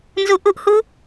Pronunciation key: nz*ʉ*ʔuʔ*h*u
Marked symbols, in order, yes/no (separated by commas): no, yes